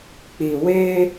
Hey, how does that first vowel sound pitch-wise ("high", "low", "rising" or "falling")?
low